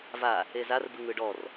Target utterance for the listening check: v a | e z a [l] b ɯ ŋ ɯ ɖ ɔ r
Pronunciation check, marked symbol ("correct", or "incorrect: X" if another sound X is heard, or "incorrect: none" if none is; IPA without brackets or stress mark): incorrect: r